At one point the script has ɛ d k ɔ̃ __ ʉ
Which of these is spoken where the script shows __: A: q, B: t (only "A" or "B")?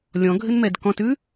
B